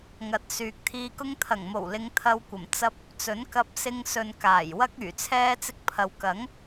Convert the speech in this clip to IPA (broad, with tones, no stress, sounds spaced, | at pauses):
ŋ ɐ˨˥ t̚ s yː˨ k̚ t̪ʰ iː˧ k ʊ˥ ŋ t̪ʰ ɐ˨˩ ŋ m o˨˩ w l ɪ˨˧ ŋ t̪ʰ ɐ˧ w kʷ ɐ˨˩ m t͡s ɐ˧ p̚ | t͡s ɵ˨˥ n k ɐ˧ p̚ s ɪ˧ ŋ s ɵ˨ n k aː˨˩ j w ɐ˥ k̚ yː˨˩ t͡sʰ ɛː˥ t͡s ɪ˧ k̚ pʰ ɐ˨ w k ɐ˨˥ ŋ